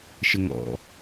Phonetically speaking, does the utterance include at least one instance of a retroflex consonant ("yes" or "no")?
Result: no